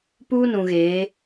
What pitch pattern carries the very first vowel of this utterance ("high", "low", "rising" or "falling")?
high